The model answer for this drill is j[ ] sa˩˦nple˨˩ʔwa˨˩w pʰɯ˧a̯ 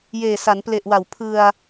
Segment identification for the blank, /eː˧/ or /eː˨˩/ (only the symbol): eː˨˩